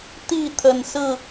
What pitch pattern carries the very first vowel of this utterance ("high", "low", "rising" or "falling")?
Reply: falling